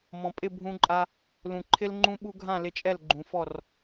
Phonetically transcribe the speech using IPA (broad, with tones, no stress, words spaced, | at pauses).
mɔ̃˨pʼɪ˦˨bʱũ˧ǃʼa˧ | lũ˨ǃʰɪ˦l ŋ͡ǃũ˦ɓu˦ ɡʱã˦˨lɪ˧t͡ʃʼɛ˦˨l ɡ͡ǃũ˨fɔ˦˨r